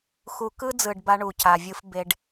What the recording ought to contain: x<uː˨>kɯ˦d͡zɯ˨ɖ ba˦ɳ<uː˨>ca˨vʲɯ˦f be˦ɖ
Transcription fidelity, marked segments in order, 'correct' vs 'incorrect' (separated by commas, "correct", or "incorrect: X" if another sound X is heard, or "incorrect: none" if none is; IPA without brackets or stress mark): incorrect: u˨, incorrect: u˨